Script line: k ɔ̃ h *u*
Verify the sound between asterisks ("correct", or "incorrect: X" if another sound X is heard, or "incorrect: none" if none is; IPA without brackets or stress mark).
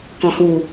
correct